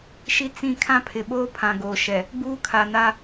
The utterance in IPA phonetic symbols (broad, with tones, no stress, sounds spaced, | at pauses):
ʃ i˦ t͡s ĩ˦˨ kʰ ã˦ pʰ ɪ˨ ɓ oː˦ pʰ ã˨ ɡ oː˨ ʃ ɛ˨ | ɡ͡b uː˦ kʰ a˨ n a˦